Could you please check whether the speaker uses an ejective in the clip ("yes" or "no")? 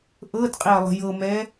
yes